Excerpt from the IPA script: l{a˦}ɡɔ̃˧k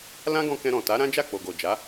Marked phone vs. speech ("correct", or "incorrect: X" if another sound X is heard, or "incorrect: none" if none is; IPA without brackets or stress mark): incorrect: ã˦